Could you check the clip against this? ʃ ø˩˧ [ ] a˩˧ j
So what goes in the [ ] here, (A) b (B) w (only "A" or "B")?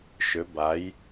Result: A